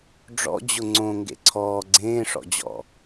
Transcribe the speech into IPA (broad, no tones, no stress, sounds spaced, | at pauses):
ɖ͡ʐ ɔ̰ d͡ʑ ʊ ŋ͡ǀ õ ŋ ɡ ḛ ǀʰ ɔː ɡ͡ǀ ẽː ʂ ɔ̰ d͡ʑ ɔ̰